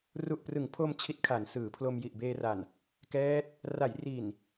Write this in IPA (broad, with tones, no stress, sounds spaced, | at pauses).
r u˨˩ ʔ p r ɯ˩˦ ŋ pʰ o˧ m t͡ɕʰ i˦˥ t̚ kʰ a˩˦ n s ɯː˩˦ pʰ l o˧ m j i˨˩ ʔ b eː˧ r a˨˩ n | k ɛː˦˥ t̚ | r a˩˦ j r i˨˩ n